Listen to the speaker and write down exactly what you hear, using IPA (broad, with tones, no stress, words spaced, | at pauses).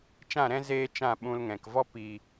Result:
t͡ʃã˦˨ɾɛ̃˦ zeː˦t͡ʃã˦˨ɓũ˧lŋɛ̃˨k vɔ˧pi˨